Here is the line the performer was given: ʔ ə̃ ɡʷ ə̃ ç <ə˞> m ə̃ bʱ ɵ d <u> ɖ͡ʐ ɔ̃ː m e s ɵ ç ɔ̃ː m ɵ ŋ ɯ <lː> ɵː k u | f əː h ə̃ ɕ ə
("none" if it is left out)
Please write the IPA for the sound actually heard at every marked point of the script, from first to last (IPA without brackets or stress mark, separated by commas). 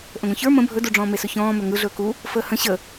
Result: ə˞, u, ɮ